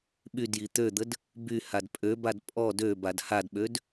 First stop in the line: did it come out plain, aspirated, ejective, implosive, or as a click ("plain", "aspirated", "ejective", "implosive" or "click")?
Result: implosive